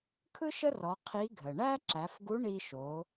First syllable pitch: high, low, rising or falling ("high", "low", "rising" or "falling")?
high